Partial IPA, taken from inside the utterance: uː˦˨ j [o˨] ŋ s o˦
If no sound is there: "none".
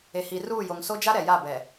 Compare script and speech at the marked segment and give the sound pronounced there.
o˨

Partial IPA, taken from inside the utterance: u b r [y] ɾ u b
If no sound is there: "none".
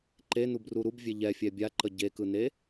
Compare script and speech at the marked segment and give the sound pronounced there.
u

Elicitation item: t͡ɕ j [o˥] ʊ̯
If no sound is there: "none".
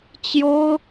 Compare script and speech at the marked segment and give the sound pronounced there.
o˥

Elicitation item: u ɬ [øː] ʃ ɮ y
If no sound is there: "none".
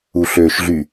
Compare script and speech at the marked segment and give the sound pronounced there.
øː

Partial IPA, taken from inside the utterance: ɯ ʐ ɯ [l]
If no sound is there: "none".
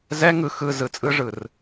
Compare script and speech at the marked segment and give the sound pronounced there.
r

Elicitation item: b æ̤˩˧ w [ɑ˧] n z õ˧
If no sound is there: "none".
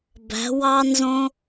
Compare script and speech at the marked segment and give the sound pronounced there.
ɑ˧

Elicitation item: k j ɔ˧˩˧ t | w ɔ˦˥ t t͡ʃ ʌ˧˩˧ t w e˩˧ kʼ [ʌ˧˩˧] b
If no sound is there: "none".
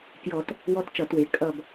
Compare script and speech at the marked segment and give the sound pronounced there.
ʌ˦˨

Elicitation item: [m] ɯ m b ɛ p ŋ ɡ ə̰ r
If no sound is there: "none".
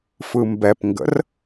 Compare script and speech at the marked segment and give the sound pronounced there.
f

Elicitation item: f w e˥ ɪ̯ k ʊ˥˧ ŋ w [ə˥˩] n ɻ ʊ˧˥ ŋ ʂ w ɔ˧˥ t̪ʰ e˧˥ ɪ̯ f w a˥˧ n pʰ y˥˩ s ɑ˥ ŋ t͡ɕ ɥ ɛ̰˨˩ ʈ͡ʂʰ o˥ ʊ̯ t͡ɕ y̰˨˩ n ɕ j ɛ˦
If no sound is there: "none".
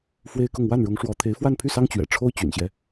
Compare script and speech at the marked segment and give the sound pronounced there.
a˥˩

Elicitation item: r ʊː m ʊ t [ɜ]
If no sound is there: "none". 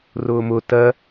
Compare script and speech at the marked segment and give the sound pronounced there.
ɜ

